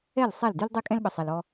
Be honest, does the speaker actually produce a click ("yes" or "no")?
no